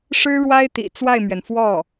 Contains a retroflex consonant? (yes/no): yes